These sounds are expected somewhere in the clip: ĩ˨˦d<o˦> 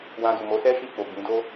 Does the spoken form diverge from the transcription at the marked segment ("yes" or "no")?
no